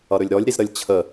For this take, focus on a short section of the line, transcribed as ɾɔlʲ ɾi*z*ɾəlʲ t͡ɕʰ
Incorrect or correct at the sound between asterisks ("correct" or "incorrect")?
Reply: correct